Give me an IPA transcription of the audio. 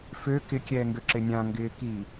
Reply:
f ø k ɪ kʲ ɛː ŋ ɡ ø ǁ ɪ nʲ ã ŋ ɡ ɪː k i

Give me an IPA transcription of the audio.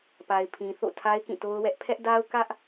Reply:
p a˨ ɪ̯ pʰ ĩ˨ θ o̰˦˨ tʰ a˦ ɪ̯ k ĩ˦˨ t o˦ ʊ̯ w ɛ˦ ʔ pʰ ɛ˦ ʔ d a˦ ʊ̯ k ä˦ ʔ

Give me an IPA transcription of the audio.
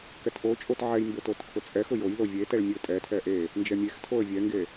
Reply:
k ɛ t ʔ o t͡ʃʼ o t ʕ ɛ j m b ʊ t o t kʰ ʊ t͡sʼ ɛ x ʊ j o j l o vʲ e t ɛ ɭ mʲ o tʼ ɛ tʰ ɛ ʔ e | n d͡ʒ ɛ mʲ e x tʰ o ə̯ vʲ ɛ ŋ ɡ e

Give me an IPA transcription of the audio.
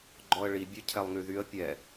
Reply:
ɡ͡ǃ ɔ ə̯ ɭ i bʲ ø cʰ ɛ lˠ ŋ y ð y ə̯ pʲ ɛ

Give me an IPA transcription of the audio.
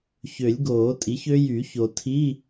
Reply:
ç ø˨˩˦ lʲ ɡ oː˨˩˦ tʼ i˩˥ ç ø˦˥ j y˨˩˦ ç o˨ tʰ i˧˥˧

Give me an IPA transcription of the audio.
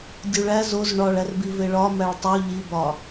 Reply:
dʲ u ɭ æ z o z ɳ ɒ ɭ æ r b i v e ɭ ɒ m æ ɭ tˤ u ʎ i b ɒ

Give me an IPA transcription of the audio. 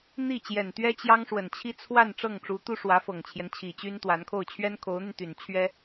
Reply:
n̪ i˥˩ t͡ɕ j ɛ˨˩ n t̪ ɥ ɛ˥ t͡ɕ j ɑ˥ ŋ ʂ w ə˨˩ n t͡ɕʰ i˥ t͡sʰ w a˥˧ n ʈ͡ʂ ɤ˥˩ ŋ ʈ͡ʂ u˧˥ t̪ u˥ ʂ w ä˧˥ f ɤ˨˩ ŋ t͡ɕʰ j ɛ˦ n t͡ɕʰ i˨˩ t͡ɕ y˥ n t̪ w a˧˥ n kʰ o˥˩ ʊ̯ t͡ɕʰ ɥ ɛ˥ n kʰ o˧˥ ʊ̯ n̪ y˧ n t̪ y˨˩ n t͡ɕʰ ɥ ɛ˥

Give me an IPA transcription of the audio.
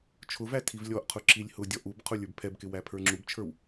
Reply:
t͡ʃʰ ʊ v æ tʰ i v lʲ ɔ ʔ qʰ ʊ ǁ i lʲ h ʊ dʲ ɔ ʔ u b qʰ ʊ lʲ ə˞ b pʰ ɛ b k ɪ w æ pʰ ə˞ ŋ͡ǁ u b t͡ʃʰ ə˞ w

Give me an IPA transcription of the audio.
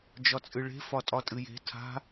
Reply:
d͡ʒ ɒ t͡sʼ ɨ ɭ e̤ f ɒ tʼ ɒ tʼ ɨ j e̤ tʰ a̤

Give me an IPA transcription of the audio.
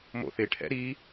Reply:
m o̰ θ ɪ ʈʰ ɛ̰ ɾ i

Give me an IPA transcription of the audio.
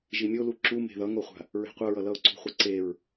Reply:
ʒ i mʲ o l u ǁ u m e̤ ð ʌ ŋ o χʷ a̤ | ɹ e̤ qʷ ʌ ɹ ʌ l ʌ ʊ̯ ǀ ṳ χʷ ɯ ǀ e ɹ

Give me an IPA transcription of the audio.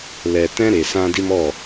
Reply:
l ɛ˨ t ɛ̃˦ ɾ e˨ s ã˧ d i˧ m ɔ˦˨

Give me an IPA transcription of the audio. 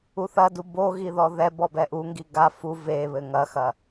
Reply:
u θ ɐ d u b o ɣ i ð ɔ ð ɛ b ɔ b ɛ ʔ u ŋ ɡ i ɡ a f u v e β ɘ ŋ ɐ x ɐ

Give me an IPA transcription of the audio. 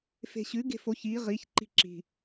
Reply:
f e̤ ɕ ʉ ɡ e̤ f o ç i ʁ i ç ǃ i̤ ǁ i̤

